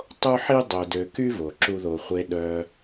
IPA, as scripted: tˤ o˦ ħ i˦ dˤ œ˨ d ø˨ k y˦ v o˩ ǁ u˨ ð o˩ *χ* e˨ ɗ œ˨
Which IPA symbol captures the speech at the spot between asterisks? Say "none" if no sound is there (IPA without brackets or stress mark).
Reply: χʷ